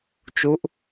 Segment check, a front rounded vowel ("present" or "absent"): absent